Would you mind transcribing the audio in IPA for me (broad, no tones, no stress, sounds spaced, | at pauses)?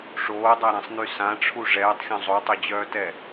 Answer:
ʂ oː dˤ a ɾ ã sˤ n y s ã ʈ͡ʂʰ u ʐ ɛː tˤ xʲ ɔ̃ zˤ o tˤ ø d͡ʑ œː t ɛ